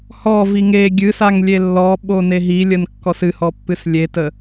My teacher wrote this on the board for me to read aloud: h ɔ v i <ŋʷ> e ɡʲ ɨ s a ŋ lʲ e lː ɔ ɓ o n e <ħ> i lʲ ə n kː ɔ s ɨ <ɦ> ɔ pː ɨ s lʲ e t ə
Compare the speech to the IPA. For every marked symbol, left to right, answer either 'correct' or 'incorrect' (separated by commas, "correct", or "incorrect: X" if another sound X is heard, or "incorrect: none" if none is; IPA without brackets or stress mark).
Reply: incorrect: ŋ, incorrect: ɦ, incorrect: h